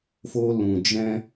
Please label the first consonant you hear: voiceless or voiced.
voiceless